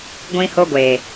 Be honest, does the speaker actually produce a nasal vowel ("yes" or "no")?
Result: yes